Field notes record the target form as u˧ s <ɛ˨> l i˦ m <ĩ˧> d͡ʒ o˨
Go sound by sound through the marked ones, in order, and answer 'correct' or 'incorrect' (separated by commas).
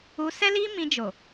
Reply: incorrect, correct